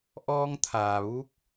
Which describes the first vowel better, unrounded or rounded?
rounded